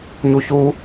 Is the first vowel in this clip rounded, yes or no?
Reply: yes